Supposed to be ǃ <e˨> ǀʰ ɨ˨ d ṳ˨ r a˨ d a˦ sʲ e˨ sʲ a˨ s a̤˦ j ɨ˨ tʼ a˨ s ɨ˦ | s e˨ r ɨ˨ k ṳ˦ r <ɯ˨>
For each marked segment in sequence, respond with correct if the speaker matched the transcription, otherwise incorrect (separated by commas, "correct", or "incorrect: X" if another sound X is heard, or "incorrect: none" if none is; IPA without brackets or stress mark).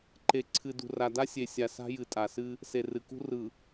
correct, correct